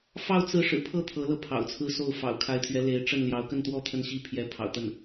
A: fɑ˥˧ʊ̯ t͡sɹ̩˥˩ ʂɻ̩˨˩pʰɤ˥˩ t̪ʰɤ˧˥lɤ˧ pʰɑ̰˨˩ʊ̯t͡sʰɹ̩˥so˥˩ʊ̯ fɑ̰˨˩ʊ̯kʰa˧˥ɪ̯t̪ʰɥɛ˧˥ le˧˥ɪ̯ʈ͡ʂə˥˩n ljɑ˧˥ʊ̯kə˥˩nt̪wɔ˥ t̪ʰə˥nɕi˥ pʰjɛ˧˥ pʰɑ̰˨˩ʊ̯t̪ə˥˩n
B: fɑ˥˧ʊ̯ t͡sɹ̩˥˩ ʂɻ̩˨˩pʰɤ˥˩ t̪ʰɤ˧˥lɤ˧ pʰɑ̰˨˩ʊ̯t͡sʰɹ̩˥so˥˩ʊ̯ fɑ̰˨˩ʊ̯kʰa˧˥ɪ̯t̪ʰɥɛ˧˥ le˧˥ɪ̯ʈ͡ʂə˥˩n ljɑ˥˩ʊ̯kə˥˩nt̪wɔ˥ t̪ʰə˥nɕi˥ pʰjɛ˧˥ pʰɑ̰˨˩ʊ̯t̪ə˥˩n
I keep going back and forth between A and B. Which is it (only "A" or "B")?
A